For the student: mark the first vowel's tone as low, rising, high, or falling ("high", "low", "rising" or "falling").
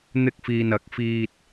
high